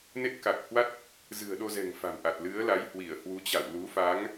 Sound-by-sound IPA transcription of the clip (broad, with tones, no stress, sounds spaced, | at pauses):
n e˦˥ t̚ k a˨˩ k̚ h w a˦˥ t̚ | z ɨ̤˨˩ ə̯ ɗ o˧ z ɛ̤˨˩ ŋ f a̤˨˩ m ʔ a˨˩ t̚ l ɨ˨˦ ə̯ l a˨˦ j h w i˧˩ ə̯ h w u˨˦ t͡ɕ a̰˧˨ w l u˨˦ f a˨˦ ŋ